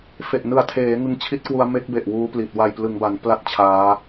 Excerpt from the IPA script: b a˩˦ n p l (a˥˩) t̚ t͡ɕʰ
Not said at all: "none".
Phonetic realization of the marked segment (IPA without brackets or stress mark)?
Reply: a˥˩